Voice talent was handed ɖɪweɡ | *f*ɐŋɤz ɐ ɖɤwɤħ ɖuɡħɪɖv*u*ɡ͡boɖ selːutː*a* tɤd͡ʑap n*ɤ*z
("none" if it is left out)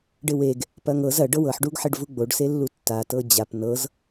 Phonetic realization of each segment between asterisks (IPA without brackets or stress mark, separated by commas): p, u, a, ɤ